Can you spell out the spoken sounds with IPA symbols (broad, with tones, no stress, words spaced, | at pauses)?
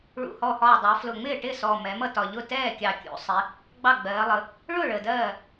ɭṵ˨˩hɔ˨˩hɒː˨˩ dˤɜ˩˧flʊ˨˩ŋ͡mɪː˥˩ ʈɪ˥˩sɔ˨˩ mɛ˩˧mʌ˥˩ tɒ˨˩ʎʊ˥˩ tɛː˥˩kʲɑ˨˩kʲṵ˩˧sˤɪ˩˧ | ɡ͡bɑ˥˩ɡ͡bɜː˩˧lˠə˩˧ | ɭʊ˥˩ ɭə˨˩dɜː˥˩